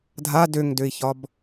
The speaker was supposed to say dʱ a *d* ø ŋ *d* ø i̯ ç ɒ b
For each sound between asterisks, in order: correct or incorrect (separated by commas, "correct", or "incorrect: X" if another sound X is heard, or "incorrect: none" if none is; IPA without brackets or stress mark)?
correct, correct